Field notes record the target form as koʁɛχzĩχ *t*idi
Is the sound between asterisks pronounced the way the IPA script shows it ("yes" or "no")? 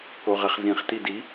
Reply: yes